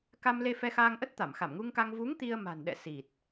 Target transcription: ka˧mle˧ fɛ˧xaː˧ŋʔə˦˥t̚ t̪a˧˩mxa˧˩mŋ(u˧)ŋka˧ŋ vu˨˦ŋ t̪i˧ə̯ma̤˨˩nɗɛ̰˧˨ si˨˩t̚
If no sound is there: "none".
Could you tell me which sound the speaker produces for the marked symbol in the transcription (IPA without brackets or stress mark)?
u˧